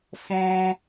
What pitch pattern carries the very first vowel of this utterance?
high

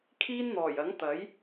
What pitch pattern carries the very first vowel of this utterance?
high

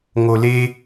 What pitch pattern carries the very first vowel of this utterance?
low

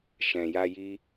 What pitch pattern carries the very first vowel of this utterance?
low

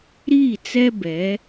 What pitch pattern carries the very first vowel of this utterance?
falling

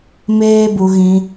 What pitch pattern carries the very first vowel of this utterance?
high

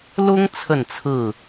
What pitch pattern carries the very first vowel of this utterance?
high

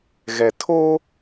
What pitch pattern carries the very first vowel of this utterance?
low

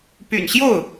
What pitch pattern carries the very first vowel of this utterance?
low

